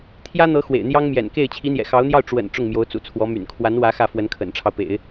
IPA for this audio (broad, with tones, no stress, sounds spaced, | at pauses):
t̪ʰ j ä˥ n̪ ɤ˧˥ x w ḛ˨˩ ɪ̯ n̪ j ɑ˥ ŋ m j ɛ̰˨˩ n k e˥˩ ɪ̯ t͡ɕʰ i˧˥ n̪ j ɛ̰˨˩ x ɑ˧˥ ʊ̯ n̪ j ɑ˥˩ ʊ̯ ʈ͡ʂ w ə̰˨˩ n ʈ͡ʂ ʊ˥˩ ŋ m j o˧˥ ʊ̯ t͡s ṵ˨˩ t͡sʰ w ɔ˧˥ m y̰˨˩ n kʰ w a˧˥ n w ä˧˥ x ä˥˩ f w ə˧˥ n kʰ ə̰˨˩ n ʈ͡ʂʰ ɑ˦ ʊ̯ p ḛ˨˩˦ ɪ̯